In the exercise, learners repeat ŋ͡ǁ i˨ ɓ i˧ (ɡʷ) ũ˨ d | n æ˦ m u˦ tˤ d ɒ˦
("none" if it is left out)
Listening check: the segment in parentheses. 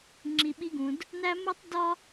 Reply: ɡ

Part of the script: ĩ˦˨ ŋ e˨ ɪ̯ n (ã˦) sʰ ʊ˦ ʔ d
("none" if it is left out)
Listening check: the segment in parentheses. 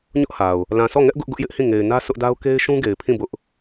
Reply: ä˦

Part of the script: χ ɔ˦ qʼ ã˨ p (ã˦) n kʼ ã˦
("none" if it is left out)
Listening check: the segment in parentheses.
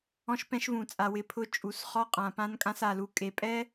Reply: ã˦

